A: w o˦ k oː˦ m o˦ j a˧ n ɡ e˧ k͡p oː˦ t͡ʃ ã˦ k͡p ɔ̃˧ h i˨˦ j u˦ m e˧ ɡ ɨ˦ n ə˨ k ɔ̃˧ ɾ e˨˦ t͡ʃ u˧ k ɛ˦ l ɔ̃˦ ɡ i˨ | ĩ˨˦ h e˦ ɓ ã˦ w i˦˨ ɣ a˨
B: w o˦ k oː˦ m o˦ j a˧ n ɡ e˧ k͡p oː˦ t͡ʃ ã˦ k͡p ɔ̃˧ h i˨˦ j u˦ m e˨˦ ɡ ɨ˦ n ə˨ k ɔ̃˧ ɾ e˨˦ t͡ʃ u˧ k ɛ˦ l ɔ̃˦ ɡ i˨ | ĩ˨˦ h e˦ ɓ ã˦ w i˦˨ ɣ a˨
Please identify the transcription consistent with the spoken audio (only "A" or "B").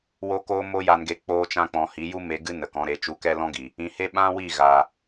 A